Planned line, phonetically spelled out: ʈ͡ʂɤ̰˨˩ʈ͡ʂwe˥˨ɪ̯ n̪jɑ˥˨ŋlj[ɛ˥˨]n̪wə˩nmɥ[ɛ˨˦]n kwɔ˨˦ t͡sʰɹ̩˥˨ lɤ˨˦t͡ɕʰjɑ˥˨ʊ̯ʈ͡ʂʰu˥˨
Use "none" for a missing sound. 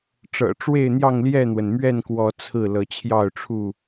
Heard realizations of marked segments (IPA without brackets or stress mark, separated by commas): ɛ˥˨, ɛ˥˨